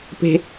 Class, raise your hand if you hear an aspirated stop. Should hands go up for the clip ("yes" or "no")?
no